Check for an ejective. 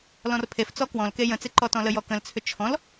absent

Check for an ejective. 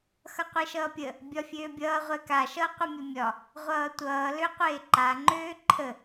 absent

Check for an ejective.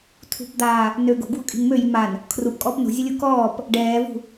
present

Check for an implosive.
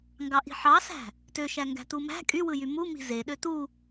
present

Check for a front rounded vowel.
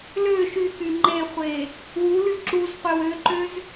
present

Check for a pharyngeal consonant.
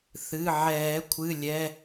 present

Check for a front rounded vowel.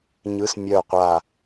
present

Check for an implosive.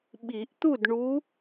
present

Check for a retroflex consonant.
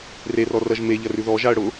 present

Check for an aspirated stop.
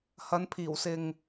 present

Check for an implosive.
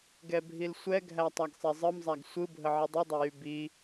absent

